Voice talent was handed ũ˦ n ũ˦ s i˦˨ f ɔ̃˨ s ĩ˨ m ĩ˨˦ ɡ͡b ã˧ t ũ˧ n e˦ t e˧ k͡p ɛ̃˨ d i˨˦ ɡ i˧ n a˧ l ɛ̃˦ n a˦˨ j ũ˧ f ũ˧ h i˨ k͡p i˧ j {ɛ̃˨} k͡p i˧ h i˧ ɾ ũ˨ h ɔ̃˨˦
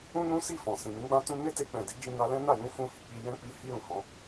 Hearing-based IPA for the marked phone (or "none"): ɛ̃˦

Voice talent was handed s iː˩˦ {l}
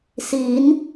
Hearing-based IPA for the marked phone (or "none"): n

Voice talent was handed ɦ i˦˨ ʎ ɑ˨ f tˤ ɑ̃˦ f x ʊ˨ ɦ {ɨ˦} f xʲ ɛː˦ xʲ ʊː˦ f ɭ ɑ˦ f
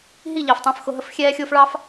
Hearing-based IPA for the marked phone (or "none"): ə˦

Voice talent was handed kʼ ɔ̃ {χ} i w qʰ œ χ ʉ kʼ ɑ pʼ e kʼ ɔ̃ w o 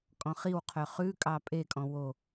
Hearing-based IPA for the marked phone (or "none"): χ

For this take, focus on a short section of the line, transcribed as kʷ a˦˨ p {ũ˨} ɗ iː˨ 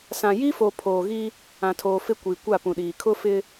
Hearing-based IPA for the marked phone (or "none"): ũ˨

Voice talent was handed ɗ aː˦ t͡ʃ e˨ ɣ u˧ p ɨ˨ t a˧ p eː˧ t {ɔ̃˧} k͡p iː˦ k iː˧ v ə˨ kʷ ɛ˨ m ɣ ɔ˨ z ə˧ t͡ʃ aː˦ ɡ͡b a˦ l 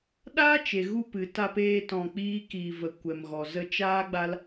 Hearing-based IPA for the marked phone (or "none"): ɔ̃˧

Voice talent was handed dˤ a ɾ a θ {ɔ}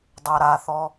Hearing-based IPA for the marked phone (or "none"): ɔ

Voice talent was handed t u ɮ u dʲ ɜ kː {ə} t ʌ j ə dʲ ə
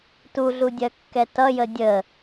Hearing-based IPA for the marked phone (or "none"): ɛ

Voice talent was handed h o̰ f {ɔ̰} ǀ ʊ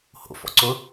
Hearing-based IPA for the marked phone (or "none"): ɔ̰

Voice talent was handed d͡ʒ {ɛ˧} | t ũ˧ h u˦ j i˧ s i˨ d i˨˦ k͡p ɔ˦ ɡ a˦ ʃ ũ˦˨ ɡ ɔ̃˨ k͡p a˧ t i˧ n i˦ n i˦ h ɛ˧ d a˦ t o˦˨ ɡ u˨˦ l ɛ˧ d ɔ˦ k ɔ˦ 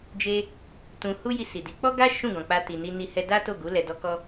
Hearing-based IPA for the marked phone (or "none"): e˧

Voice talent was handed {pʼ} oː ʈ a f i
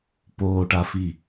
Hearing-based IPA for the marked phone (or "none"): p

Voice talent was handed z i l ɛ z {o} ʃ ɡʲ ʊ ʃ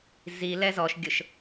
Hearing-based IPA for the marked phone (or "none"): ɔ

